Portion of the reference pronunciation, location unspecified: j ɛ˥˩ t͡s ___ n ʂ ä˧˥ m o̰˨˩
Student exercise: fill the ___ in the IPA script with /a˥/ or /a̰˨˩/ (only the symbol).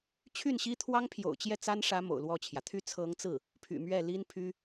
a˥